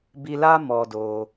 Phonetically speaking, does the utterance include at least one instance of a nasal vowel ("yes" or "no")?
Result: no